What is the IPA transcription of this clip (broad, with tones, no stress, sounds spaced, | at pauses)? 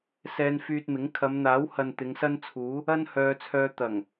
s ɛː˧ n f yː˧ t̚ m ɪ˨˥ ŋ kʰ ɐ˨˧ m n̪ aː˨˥ w h ɐ˨ n t̪ ɪ˨˧ ŋ s ɐ˥ n t͡sʰ uː˨˥ | ɐ˥ n h œː˧ t͡sʰ œː˧ t̪ ɐ˨˩ ŋ